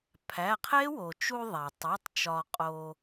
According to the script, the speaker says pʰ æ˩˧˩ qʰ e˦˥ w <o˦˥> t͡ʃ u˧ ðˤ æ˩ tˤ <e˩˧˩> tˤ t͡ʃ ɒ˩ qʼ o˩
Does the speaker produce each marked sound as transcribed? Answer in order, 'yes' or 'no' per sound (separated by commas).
no, yes